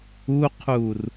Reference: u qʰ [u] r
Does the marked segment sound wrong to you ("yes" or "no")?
no